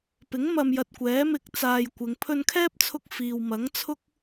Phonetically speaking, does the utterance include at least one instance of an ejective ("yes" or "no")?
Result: no